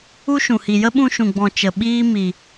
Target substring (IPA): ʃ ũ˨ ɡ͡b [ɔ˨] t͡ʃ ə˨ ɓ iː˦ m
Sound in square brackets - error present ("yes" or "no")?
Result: yes